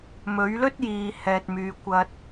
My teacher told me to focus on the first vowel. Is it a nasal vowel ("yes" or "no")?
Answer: no